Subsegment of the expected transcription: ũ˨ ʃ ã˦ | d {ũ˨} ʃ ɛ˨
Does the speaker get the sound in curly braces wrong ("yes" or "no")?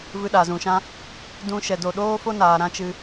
yes